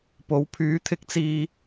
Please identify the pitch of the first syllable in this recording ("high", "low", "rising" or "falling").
rising